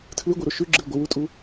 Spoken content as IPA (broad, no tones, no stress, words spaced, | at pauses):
tʰlɨɡʷiɾo ʃʉɡ͡ǁɨl ɡʷɨwutʼu